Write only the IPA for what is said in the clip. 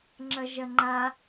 ŋ͡ǁ ɐ ʒ ɐ ŋ͡ǃ a

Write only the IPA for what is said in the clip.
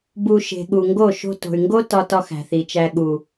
b u˧ ʃ e̤˨ ɠ u˨ ŋ ɡ o˦˨ ʃ o̤˧ t o̤˨ y̯ ŋ ɡ o˦ t ɒ˧ t ɒ˦ x æ̤˨ θ i˨ t͡ʃ æ˧ ɠ u˨

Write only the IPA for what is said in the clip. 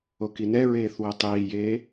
o k i n ɛ ɹ eː θ w ɛ tˤ iː j eː

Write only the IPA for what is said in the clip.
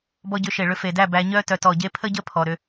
b ɔ˧ ɟ ʏ˨˦ ʃ e˨ ɭ ʏ˧ f e˨ d æ˦˨ b æ˧ ɲ œ˦ t œ˨ t ɔ˨ ɟ e˧ pʰ ə˦ ɟ ə˦ pʰ ɔ˧ ɾ ʏ˧

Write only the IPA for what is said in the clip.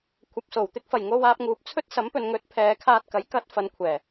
kʷʰ ɐ˨ p̚ s o˨˩ w t̪ ɪ˧ k̚ f ɐ˨˩ j ŋ o˧ w aː˧ p̚ ŋ uː˨ p̚ t͡sʰ ɵ˥ t̚ s ɐ˨˥ m p ɵ˨ n ŋ ɵ˨˥ t̚ pʰ ɛː˨ kʰ aː˧ t̚ k ɐ˨˥ j k ɐ˨˥ t̚ f ɐ˨˧ n kʷʰ ɛː˨˩

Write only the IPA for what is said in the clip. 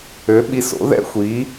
ø˩˥ ɓ i˧ s o̰˩˥ ð ɛ̰˥ xʷ i˩˥

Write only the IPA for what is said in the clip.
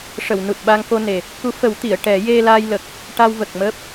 ʂ ə˨˩˨ w n u˨˩ t̚ ɓ a˧ ŋ k o˧ n e˨˩ | k u˧˥ f ə˨˩˦ w t̪ i˨˩˨ ə̯ ʈ ɛ˨˩˦ j e˧ l aː˧ j l ə˨˩ k̚ | ʈ a˧ w v ə˨˩ k̚ m əː˦˥ p̚

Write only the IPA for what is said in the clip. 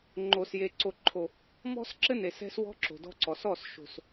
ŋ͡ǃ o˨ s j e˨ ǀ o˨ ǃʰ o˨ | m ɔ̤˦ s ǁ ɘ˦ n e˨ s ɛ̤˦ s w ɔ̤˦ ǁ o̤˨ d ɔ̤˦ ǀ ɔ˨ s ɔ˦˨ s ʃ o̤˨ s

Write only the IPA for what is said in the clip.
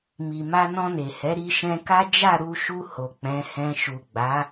m i˨ m a˧ n ɔ̃˧ n e˨ h ɛ˨˦ ɾ i˧ ʃ ɛ̃˧ k a˦ d͡ʒ a˦˨ ɾ u˧ ʃ u˧ h o˨ k͡p ɛ̃˨˦ h ɛ̃˧ ʃ u˨ ɡ͡b a˨˦

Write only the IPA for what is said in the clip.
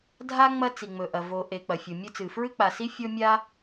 dʱ a˥ ŋ͡m ɐ˥ t͡s i˩ ŋ͡m ɵ˩ ʔ ɐ˩ v o˩ ʔ e˩ k͡p ɐ˩ fʲ o˩ mʲ ɵ˥ t͡s ɨ˩ f ɹ ɨ˥ k͡p a˩ s i˥ fʲ o˥ mʲ a˥

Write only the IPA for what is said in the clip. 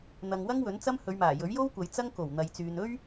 n̪ ɐ˧ ŋ w ɐ˥ ŋ w ɵ˨˥ n t͡s ɐ˥ m h ɵ˨˧ ɥ m aː˨˩ j ɵ˨˥ ɥ j o˥ w kʷ ɐ˨ j t͡s ɐ˥ ŋ k o˨˩ w n̪ ɐ˨ j t͡s yː˨ n ɵ˥ ɥ

